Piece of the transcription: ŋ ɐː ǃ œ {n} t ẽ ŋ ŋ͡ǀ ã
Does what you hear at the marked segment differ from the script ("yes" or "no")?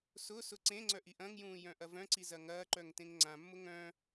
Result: yes